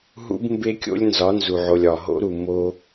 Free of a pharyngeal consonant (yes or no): no